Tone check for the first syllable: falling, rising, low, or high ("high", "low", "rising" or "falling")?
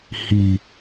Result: low